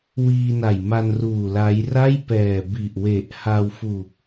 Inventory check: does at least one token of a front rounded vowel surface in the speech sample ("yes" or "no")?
no